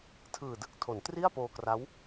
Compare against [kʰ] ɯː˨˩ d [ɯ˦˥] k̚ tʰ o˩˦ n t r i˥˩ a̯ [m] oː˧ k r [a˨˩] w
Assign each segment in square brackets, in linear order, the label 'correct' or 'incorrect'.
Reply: incorrect: tʰ, correct, incorrect: p, incorrect: a˦˥

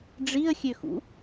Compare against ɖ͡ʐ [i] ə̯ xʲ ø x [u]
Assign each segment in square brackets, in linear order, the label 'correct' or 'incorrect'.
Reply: correct, incorrect: ṵ

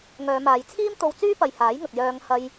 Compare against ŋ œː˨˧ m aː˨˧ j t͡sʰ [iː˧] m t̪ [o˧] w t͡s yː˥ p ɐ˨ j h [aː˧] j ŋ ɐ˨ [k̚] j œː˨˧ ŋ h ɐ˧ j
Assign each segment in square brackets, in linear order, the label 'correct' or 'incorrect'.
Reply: incorrect: iː˥, correct, incorrect: aː˨˥, correct

